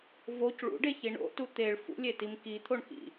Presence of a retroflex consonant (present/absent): present